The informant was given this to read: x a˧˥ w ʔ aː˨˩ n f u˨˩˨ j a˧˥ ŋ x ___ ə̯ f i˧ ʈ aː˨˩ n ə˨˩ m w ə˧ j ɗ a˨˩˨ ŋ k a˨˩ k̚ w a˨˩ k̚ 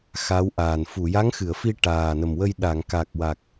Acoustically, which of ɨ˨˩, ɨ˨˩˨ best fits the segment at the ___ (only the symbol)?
ɨ˨˩˨